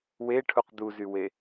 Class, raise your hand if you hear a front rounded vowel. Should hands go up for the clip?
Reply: yes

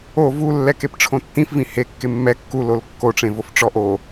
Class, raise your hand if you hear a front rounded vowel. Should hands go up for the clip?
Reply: no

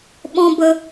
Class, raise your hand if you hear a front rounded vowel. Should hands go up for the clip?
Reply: no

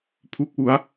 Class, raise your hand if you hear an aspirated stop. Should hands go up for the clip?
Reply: yes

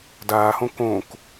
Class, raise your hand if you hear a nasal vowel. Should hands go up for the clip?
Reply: yes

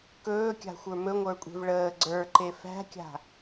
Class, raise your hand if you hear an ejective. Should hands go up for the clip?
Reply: yes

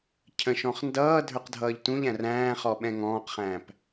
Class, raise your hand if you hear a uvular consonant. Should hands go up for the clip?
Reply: yes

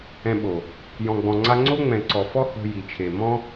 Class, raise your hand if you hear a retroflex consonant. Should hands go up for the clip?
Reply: no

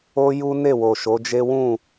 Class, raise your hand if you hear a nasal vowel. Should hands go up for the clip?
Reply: yes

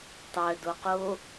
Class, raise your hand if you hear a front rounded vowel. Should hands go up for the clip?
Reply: yes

